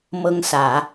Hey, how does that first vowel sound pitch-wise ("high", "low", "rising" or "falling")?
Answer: high